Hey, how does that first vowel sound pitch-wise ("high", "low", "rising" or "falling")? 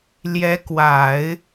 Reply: rising